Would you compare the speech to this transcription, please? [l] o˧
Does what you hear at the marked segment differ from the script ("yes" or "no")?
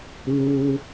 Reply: no